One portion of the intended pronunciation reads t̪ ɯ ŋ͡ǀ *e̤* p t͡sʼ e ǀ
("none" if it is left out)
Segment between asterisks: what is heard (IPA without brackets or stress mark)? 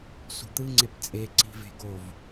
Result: e